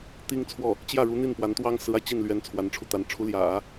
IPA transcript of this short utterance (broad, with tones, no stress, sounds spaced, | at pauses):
t̪ i˥ ŋ t͡sʰ w ɔ˥˩ | t͡ɕ j ä˥˩ ɻ u˧˥ n̪ i˥˩ n p w a˧˥ n t̪ w ɑ˥ ŋ s ɹ̩˧˥ a˧ ɪ̯ t͡ɕ i˥˩ n l ɥ ɛ˧˥ n t͡sʰ w a˧˥ n ʈ͡ʂʰ u˧ t̪ a˧˥ n ʈ͡ʂʰ u˧˥ l j ä̰˨˩˦